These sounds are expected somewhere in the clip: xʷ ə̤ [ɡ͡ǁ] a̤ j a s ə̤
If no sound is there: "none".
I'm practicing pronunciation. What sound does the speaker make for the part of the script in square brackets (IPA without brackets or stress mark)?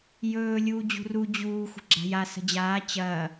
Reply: ɡ͡ǁ